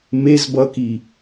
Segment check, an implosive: absent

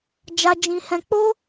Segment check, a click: absent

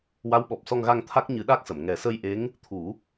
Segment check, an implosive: present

